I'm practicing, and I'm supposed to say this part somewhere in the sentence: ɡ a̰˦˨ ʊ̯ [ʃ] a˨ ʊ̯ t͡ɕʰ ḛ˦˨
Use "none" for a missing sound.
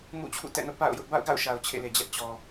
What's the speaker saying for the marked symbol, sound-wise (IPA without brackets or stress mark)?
ʃ